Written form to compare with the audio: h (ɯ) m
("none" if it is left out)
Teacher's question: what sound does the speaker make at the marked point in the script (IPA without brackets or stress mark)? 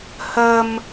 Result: ə